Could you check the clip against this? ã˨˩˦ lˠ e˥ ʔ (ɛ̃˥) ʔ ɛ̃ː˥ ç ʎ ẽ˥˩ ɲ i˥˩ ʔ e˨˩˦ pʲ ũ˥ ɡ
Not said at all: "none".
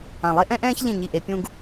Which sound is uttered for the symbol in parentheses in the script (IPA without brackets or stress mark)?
ɛ̃˥